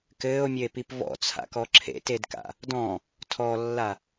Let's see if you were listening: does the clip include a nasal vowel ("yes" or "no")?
yes